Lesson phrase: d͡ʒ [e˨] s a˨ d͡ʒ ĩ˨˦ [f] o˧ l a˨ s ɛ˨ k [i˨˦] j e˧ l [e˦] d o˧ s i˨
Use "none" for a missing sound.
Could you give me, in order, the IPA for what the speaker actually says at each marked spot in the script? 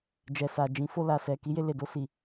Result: ɛ˨, f, i˨˦, e˨

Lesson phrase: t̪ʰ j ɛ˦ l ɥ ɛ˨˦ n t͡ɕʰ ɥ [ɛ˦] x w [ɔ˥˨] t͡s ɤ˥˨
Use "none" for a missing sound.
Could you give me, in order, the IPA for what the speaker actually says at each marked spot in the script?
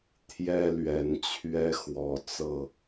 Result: ɛ˦, ɔ˨˦

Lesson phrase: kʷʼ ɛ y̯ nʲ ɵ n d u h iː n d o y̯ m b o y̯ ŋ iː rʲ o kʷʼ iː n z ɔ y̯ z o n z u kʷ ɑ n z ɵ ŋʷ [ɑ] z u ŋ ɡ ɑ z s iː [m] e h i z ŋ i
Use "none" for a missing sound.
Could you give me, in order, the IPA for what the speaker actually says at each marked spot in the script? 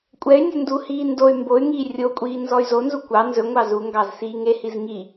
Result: ɑ, ŋ

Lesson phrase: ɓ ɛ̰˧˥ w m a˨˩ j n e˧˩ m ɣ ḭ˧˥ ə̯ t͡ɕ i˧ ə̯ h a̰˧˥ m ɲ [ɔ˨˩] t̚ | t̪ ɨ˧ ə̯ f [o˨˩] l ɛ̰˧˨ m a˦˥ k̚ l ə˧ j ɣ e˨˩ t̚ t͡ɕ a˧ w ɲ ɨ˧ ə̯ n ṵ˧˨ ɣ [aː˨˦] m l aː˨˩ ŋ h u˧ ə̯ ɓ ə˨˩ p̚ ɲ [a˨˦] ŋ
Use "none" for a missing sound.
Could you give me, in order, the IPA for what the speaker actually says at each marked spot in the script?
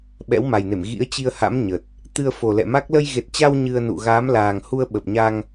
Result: ə˨˩, o˨˩, aː˨˦, a˧

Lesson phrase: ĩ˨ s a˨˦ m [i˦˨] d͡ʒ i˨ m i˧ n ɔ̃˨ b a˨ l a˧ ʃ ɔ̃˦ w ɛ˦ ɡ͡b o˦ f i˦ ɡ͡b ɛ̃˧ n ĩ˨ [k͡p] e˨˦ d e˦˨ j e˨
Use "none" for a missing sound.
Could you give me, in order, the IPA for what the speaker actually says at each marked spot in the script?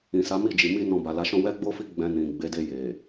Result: i˦˨, ɡ͡b

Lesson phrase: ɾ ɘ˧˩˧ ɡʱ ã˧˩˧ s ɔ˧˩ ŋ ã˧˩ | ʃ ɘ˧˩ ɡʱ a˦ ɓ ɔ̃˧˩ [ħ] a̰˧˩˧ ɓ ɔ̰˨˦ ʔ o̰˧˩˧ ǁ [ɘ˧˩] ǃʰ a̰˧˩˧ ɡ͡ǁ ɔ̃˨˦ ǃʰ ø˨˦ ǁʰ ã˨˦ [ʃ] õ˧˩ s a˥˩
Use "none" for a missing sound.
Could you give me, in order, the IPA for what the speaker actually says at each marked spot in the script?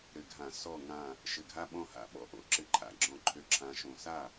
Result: h, ɘ˧˩, ʃ

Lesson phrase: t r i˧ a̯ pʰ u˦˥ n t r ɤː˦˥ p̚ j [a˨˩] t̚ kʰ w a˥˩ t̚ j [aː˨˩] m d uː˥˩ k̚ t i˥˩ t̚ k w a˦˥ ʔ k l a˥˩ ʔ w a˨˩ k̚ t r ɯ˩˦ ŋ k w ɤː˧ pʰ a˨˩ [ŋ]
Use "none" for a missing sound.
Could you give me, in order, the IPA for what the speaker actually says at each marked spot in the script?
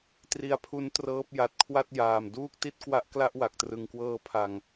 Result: a˨˩, aː˨˩, ŋ

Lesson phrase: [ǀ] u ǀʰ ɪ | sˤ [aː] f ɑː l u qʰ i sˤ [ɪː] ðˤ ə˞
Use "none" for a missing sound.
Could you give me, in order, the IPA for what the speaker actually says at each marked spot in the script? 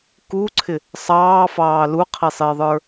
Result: k, ɑː, ɪː

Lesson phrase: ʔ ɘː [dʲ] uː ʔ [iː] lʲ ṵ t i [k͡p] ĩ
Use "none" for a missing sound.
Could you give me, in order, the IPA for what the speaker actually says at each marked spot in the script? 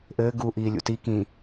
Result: ɡ, iː, k

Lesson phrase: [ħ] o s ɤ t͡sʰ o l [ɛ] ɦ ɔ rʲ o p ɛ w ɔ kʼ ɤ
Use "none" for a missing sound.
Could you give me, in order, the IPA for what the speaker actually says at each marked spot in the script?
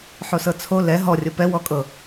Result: ħ, ɛ

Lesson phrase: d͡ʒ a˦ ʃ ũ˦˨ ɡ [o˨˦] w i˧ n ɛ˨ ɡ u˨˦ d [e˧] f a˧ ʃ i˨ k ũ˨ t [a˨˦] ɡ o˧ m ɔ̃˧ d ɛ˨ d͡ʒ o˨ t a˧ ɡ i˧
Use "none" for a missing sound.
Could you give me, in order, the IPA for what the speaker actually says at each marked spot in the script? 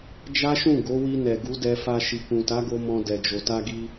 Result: o˨˦, ɛ˧, a˨˦

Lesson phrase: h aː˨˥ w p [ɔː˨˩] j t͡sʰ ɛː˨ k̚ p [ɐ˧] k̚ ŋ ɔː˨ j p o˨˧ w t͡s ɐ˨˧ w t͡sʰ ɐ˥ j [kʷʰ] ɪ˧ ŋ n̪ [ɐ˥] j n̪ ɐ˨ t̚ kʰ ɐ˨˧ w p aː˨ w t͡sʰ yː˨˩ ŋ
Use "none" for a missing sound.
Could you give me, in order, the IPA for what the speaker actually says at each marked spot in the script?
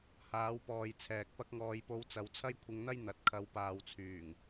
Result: ɔː˨, ɐ˧, kʷʰ, ɐ˥

